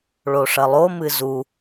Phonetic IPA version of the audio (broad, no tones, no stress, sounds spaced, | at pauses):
ɭ o ʂ ɐ lˠ o m ɨ z u